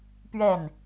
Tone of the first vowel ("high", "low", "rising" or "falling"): falling